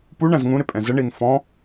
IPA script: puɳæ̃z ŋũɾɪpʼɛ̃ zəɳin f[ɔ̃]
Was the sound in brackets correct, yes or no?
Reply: yes